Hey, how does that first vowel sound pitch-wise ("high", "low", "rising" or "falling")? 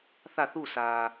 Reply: falling